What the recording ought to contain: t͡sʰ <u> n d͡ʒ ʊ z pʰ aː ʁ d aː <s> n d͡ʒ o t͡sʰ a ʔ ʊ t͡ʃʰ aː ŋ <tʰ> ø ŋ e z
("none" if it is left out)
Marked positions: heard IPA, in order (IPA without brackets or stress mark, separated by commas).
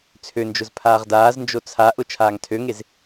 ø, z, tʰ